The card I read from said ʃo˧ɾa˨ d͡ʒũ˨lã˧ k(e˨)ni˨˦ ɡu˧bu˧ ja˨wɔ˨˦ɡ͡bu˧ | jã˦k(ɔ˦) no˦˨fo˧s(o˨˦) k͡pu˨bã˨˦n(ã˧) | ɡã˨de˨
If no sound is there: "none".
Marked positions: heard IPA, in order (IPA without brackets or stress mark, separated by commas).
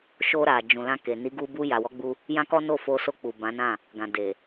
e˨, ɔ˦, o˧, ã˦˨